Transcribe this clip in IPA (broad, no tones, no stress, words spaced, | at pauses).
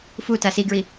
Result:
futa siɡɹi